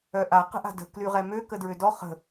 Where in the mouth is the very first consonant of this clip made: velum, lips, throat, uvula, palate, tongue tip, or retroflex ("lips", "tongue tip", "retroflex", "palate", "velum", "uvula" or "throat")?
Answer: throat